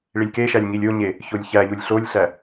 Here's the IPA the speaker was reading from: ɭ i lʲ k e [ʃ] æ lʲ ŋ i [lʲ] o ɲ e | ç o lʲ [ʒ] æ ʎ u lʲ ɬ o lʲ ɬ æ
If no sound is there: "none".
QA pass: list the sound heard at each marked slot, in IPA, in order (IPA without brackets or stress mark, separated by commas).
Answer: ʃ, lʲ, ç